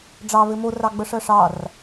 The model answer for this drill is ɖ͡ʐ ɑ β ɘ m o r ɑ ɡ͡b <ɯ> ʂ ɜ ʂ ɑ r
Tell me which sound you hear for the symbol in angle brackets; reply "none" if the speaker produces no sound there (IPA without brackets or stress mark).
ə